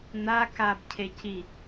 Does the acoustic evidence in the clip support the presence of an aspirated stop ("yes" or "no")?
yes